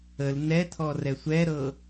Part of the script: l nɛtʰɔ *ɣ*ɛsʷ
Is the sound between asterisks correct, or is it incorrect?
incorrect